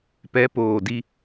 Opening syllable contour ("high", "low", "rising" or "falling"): rising